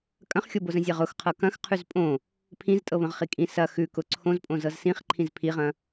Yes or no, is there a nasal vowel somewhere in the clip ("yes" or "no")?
yes